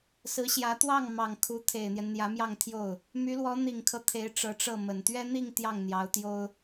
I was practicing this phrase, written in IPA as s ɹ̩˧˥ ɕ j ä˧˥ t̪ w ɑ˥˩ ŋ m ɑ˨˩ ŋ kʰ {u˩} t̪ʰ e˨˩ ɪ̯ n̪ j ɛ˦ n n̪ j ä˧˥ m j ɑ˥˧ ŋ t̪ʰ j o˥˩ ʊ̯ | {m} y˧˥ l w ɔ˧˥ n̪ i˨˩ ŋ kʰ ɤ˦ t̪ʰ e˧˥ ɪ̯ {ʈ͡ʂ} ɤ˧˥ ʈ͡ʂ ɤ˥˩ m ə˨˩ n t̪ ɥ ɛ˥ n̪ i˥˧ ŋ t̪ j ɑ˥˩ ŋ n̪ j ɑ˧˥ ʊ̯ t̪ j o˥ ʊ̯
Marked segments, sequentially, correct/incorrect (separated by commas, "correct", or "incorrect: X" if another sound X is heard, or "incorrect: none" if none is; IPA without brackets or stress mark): incorrect: u˧˥, correct, correct